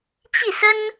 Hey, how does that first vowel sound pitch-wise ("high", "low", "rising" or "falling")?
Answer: falling